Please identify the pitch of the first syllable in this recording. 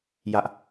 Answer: high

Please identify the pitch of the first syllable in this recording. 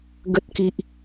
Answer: high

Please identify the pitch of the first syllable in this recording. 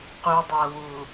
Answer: low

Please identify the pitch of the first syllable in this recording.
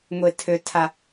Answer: high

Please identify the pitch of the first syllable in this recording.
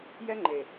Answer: high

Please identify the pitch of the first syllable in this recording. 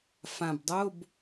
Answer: low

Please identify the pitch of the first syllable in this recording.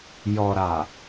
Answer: low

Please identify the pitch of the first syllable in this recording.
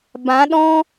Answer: rising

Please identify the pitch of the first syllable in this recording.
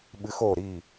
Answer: rising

